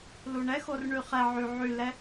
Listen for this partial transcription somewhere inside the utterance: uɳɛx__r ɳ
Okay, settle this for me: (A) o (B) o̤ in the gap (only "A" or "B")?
A